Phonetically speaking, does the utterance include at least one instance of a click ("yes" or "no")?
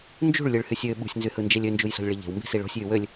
no